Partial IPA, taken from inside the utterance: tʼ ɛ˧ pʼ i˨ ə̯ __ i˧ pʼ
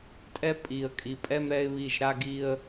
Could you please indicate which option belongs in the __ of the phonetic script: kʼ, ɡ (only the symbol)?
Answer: kʼ